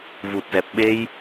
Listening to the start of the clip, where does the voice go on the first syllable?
low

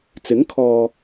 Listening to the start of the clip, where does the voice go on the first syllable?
rising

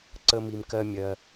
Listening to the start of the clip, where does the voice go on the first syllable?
high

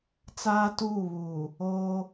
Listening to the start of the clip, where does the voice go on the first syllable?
high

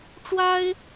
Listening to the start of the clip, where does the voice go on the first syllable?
high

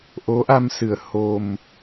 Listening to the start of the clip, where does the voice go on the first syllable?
rising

